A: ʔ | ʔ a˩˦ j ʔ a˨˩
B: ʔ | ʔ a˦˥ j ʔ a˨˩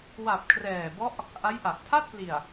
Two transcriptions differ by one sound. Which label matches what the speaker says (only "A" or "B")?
B